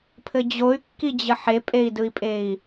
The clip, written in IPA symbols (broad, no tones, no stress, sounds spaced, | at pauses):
pʰ ɘ d͡ʑ o y̯ kː i d͡ʑ ə ħ e pʼ e i̯ d ɯ i̯ pʼ e i̯